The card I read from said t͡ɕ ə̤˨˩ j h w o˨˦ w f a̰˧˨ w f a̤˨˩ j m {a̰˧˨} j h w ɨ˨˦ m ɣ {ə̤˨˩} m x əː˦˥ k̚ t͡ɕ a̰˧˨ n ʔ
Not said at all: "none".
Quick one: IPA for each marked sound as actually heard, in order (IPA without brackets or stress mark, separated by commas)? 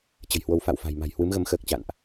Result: a̤˨˩, ə˧